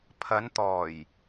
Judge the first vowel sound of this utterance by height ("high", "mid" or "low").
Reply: low